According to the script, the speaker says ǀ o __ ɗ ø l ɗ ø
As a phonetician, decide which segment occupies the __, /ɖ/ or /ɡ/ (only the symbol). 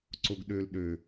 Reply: ɡ